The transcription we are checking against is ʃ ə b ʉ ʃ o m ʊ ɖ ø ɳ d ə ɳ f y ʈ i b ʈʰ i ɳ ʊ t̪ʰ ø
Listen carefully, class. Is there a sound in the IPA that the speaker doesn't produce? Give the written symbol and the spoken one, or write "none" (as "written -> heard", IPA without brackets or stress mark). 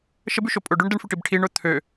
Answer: m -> pʼ